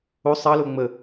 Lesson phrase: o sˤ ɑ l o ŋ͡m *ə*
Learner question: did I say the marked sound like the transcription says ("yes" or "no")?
yes